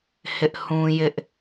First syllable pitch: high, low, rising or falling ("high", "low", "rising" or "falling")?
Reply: high